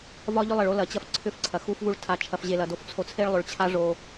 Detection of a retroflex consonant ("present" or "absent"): present